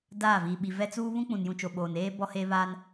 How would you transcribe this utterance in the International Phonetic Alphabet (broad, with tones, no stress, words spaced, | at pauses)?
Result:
daː˦˨viː˨ɓi˨ vɛ˦t͡suː˦ βũ˦k͡pũ˨njũ˨t͡ʃo˨ ɓoː˨neː˦bɔ˦ heː˦βaː˦n